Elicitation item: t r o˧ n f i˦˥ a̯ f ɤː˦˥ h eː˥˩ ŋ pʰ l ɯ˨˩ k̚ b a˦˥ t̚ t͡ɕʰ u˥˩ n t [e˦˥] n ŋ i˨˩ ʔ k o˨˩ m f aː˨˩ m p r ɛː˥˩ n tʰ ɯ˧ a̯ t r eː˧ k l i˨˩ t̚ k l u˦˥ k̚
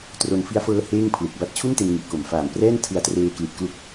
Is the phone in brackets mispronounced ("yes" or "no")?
yes